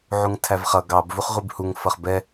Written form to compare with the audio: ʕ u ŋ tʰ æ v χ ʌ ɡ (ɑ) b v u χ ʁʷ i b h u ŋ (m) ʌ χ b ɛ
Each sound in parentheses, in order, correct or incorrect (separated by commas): correct, incorrect